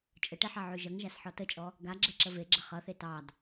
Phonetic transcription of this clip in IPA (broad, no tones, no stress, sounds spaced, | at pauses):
t͡ʃʼ ə ʈ e ħ ɑ ʕ ʉ ʒ ʌ ŋ ʒ a s ħ ɔ t ə t͡ʃʼ ɔ | ɡ a ɡ͡ǁ ɛ ǁ ə v e ɡ͡ǁ ə χ ʌ θ e t ɑ d